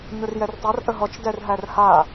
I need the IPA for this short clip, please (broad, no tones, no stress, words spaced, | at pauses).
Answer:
ɲʊrjɛrtˤar ʔəɦɔt͡ʃ dɛrɦærha